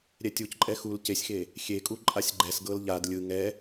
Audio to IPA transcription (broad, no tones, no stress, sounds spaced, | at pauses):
ɾʲ ɛ tʲ u c ǃʼ ɛ x u l c e sʲ x e | xʲ e kʼ u ǃʼ a sʲ ɡ͡ǃ ɛ s ɡ ɤ l ʎ a d lʲ ɯ ŋ ɛ